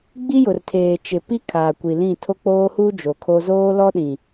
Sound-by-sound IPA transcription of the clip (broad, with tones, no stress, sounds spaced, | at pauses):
ɡ͡b i˦ j ʊ˨ r tʰ eː˨ t͡ʃ ɪ˨ p i˦ kʰ aː˨ kʷ i˨ l ĩ˦˨ tʰ o˦ k͡p oː˦ h uː˦ d͡ʒ o˨ kʰ o˦ z oː˦ l ɔ˦ ɗ ĩ˨